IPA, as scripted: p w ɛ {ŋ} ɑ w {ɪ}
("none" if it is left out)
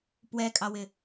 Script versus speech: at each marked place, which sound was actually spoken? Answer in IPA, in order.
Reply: kʼ, ɪ

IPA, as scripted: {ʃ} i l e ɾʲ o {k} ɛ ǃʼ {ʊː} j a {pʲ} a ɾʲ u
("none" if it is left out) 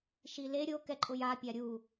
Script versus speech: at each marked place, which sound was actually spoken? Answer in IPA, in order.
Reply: ʃ, k, ʊ, pʲ

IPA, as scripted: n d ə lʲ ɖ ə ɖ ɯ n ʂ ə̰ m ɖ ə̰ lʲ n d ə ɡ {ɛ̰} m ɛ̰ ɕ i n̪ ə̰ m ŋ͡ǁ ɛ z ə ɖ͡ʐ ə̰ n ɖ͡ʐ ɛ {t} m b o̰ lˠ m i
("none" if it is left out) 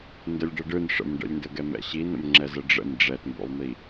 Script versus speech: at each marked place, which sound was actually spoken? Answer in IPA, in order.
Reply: ɛ, t

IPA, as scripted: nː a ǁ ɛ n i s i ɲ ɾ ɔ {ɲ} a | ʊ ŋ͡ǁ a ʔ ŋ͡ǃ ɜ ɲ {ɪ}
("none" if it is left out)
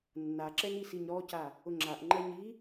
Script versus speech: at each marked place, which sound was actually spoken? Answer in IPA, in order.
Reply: c, i

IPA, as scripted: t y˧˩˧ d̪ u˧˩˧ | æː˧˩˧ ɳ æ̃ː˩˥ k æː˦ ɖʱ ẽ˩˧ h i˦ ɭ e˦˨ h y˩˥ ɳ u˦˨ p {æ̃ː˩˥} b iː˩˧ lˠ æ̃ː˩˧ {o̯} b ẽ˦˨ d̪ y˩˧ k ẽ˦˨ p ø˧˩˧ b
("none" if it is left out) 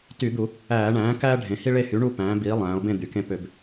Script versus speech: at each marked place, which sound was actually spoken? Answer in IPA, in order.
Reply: æ̃ː˩˧, o̯

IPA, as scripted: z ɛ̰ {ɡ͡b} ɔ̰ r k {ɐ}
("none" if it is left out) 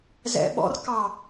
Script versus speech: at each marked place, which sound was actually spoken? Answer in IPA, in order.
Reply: ɓ, ɑ

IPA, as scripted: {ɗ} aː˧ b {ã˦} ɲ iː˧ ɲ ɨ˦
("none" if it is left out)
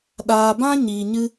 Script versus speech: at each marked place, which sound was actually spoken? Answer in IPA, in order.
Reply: ɗ, ã˦

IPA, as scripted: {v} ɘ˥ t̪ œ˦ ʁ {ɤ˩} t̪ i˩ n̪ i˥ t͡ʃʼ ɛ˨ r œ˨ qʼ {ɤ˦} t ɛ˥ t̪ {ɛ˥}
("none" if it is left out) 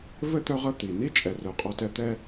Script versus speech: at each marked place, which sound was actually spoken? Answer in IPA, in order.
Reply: v, ɤ˦, ɔ˦, ɛ˥

